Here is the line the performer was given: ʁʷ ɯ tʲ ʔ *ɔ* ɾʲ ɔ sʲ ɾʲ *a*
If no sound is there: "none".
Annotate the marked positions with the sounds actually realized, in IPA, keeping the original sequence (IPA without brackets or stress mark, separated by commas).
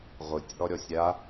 ɔ, a